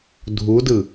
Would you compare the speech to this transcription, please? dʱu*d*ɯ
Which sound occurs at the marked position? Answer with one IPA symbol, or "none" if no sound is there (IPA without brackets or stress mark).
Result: d